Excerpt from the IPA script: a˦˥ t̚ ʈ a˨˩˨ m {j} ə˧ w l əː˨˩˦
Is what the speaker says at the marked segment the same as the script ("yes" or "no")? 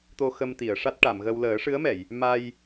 no